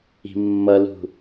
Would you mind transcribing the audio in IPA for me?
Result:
i̤ mː ʌ l ṳ

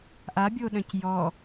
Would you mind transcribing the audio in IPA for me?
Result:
ʔ a bʲ o ɗ œ̃ c j ɔ

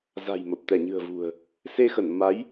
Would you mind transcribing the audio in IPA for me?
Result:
z a̤˨˩ j m ə˨˩ p̚ t̪ ɛ˧˩ ɲ ɨ̤˨˩ ə̯ v ṳ˨˩ ə̯ | s e˧ x ə˧˩ n m a˨˦ j

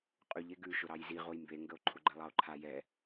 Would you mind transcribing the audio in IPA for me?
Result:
qʼ ʉ ʎ e ɡ ʉ ʃ ʊ ɾ ɑ j z i ʁ o j m b e ŋ ɡ ə o̯ ǃʰ ʊ ɡ͡ǃ ɛ lˠ ɑ o̯ ǃʰ a j ɛ

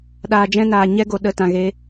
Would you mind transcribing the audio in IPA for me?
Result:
ɗ aː˨ d͡ʒ ɛ̃˧ n aː˨ ɲ ɛ˦ ɡ o˨ ɗ ə˨˦ t ã˨ ɣ e˧

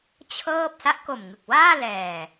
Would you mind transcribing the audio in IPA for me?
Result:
t͡ɕʰ ɤː˥˩ p̚ s a˦˥ ʔ k o˨˩ m ŋ ɯ˨˩ k̚ w aː˥˩ l ɛː˨˩

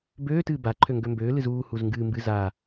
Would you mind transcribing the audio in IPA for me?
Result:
b øː t ɨː b a ǃʰ ø ŋ ɡ ø m b øː l ɨ z uː h u z ŋ ɡ ɨː m b ɨ z aː

